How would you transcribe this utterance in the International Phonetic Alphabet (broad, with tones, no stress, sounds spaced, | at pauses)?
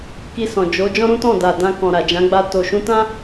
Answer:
k i˧ s ɔ̃˨ d͡ʒ o˨˦ d͡ʒ ɔ̃˦ ɾ ũ˦ t ɔ̃˦˨ d a˨ d ã˧ k ɔ̃˨ ɾ a˨ d͡ʒ ã˨˦ ɡ͡b a˧ t o˨ ʃ ũ˧ t ã˦